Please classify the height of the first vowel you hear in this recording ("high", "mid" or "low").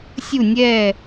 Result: high